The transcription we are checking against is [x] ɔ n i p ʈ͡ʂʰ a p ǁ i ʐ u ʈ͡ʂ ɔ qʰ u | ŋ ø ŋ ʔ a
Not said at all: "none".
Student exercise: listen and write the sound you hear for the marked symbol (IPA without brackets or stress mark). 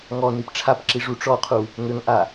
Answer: ŋ